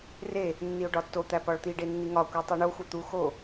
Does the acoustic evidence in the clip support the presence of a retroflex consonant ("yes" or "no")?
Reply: yes